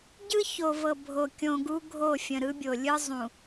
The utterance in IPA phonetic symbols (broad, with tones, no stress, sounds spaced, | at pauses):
ɟ ɯ˦ ç o˨ v ɤ˨ bʱ o˨ kʲ õ˨ ɡ u˦ ɡʱ o˦˨ fʲ ə̃˨ ɾ ɯ˦ bʲ o˨ lʲ ɯ˦ zˤ ũ˨